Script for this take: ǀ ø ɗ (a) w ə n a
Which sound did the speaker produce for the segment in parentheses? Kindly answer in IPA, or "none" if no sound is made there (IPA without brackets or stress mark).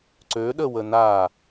ə